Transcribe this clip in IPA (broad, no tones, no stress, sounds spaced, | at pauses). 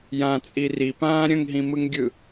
j ã t͡sʼ i r i p ãː ɾʲ ə̃ ŋ ɦ ĩ m ɯ ŋ ɡʲ ɯ